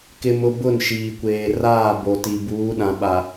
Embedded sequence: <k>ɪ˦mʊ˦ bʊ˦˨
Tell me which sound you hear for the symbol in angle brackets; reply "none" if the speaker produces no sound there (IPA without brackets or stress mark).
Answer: k